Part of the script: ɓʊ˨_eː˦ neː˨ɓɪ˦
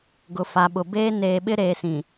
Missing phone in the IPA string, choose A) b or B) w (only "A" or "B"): A